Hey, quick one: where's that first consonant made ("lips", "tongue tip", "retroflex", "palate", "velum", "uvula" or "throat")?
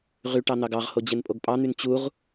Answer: uvula